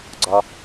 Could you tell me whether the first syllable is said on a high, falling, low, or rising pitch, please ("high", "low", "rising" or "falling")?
low